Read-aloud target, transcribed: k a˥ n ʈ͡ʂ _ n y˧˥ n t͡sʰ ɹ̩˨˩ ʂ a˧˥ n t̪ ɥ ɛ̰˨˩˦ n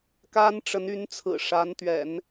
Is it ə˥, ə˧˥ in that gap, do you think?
ə˧˥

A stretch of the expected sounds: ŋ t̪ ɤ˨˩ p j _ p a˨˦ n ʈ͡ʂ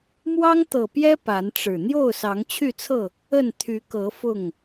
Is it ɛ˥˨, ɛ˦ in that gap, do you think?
ɛ˦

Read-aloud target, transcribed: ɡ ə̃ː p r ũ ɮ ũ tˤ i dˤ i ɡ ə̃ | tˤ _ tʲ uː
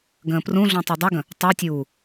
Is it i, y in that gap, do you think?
y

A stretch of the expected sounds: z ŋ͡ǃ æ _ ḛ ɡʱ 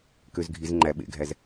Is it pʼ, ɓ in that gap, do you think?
ɓ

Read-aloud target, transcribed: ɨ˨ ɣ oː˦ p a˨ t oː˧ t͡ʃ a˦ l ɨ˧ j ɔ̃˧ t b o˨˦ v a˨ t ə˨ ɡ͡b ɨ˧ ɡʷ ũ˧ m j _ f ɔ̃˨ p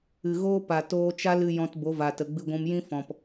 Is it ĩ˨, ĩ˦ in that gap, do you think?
ĩ˦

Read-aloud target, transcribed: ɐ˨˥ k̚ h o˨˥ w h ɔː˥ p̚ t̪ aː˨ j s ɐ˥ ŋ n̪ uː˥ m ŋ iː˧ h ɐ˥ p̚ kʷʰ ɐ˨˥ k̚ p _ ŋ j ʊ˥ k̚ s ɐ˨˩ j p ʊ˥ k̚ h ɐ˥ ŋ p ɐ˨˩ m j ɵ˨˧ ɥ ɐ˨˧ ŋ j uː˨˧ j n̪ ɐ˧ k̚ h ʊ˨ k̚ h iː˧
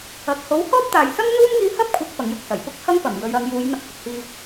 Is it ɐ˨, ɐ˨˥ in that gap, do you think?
ɐ˨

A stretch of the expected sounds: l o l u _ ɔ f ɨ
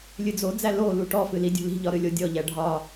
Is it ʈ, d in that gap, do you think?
ʈ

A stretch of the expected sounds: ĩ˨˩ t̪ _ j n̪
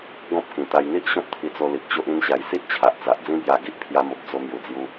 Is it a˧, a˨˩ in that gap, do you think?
a˧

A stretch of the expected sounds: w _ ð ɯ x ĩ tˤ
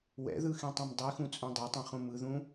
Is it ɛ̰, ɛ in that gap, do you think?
ɛ̰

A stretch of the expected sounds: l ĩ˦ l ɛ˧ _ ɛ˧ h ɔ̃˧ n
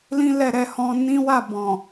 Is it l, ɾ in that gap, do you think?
ɾ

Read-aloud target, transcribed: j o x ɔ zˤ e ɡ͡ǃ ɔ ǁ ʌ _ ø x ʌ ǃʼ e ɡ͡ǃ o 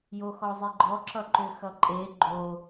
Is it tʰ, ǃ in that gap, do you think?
ǃ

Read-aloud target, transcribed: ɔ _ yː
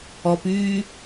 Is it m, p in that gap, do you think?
p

